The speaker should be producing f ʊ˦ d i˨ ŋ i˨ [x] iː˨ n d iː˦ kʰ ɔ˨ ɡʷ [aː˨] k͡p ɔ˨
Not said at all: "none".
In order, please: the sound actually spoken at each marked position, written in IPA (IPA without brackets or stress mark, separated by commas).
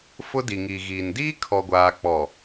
ɣ, aː˨